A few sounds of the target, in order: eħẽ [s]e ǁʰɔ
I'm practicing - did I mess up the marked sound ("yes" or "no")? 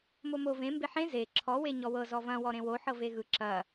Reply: yes